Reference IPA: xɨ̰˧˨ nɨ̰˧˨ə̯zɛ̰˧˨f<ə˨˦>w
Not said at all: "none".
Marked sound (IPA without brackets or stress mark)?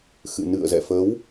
ə˨˦